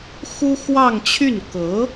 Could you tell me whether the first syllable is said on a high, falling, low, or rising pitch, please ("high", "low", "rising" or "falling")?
high